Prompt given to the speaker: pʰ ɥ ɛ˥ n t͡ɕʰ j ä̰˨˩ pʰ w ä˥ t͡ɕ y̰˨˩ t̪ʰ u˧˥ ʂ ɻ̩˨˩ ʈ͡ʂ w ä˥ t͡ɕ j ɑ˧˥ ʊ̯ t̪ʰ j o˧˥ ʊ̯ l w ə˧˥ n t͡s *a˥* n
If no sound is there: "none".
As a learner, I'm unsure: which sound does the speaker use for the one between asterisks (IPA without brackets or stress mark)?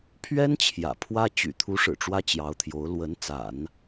a̰˨˩˦